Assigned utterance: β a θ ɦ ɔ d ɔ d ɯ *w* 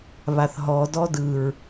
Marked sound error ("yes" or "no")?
yes